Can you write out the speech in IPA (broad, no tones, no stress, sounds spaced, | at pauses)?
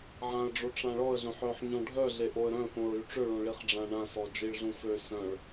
ʕ ã ə̯ ɖ͡ʐ o ʈ͡ʂ ã ɭ ɔ ə̯ ɮ œ̃ ħ œ ħ ɲ ɔ̃ ɖʱ œ ɮ e ʔ o ə̯ ɾ œ̃ θ õ ɹ y ʈ͡ʂ ø ɭ õ ɭ i χ ɖ͡ʐ ã ɳ ã s ɔ d͡ʒ i ɭ ɮ ũ f ø s œ̃ ɭ